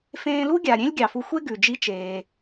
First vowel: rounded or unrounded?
unrounded